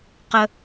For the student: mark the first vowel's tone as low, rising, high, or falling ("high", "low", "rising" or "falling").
high